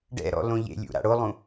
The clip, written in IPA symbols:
ɖɛ̰ɾɔ̰lõ ʎḛlʲṵɾa̰ ɽolˠũ

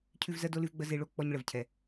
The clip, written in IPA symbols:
cʰʉ˦vzɜ˦do˦lʉ˦v ɡ͡bə˧ ze˦ɭo˦ k͡pɔ˦ɲɭə˨vcʰɛ˨

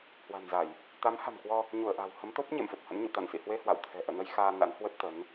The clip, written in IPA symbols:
hwa̤˨˩nza˧˩˨j | t̪a˨˦mha̤˨˩mkwɔ˧ | ɲu˧˩ə̯ʔa̤˨˩w hə˨˦mt̪o˦˥p̚ ɲḛ˧˨mfə˨˩p̚hə̰˧˥nɲṵ˧˨ t̪a̰˧˨nsḭ˧˨hwe˧hwa̰˧˨w t̪ʰɛ̤˨˩ʔə̰ː˧˨nə˧j xaː˧na̰˧˥nhwə˦˥t̚ t̪ə˨˦n

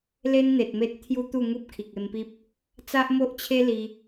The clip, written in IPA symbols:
le˦nn̪e˨t̚me˦t̚ t̪ʰju˦t̪u˥˧ ŋu˦p̚kʰi˨k̚e˧mpi˦p̚ | t͡sa˦ʔmo˦ʔt͡ɕʰe˦ li˧

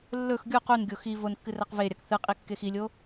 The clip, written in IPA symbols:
lːɵx ɡʲuq unɡʲo xi vonkːɨrɐq veɾʲak θɨqʼikːex ilʲo

